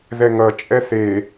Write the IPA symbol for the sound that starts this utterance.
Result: ð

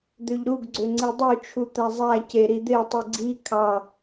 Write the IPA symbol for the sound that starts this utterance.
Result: d̪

